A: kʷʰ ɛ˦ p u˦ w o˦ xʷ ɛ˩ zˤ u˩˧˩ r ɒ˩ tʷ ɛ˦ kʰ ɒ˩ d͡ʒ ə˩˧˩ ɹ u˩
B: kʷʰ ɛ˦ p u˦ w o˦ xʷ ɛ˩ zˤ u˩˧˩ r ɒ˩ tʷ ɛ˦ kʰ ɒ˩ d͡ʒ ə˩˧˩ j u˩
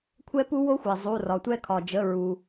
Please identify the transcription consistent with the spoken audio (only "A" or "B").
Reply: A